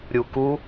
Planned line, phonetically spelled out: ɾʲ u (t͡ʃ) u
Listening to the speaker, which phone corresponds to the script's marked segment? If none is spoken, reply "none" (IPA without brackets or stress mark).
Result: k